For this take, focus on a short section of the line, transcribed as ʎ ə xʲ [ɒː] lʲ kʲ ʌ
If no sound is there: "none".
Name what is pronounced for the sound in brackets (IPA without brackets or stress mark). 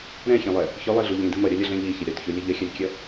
ɒ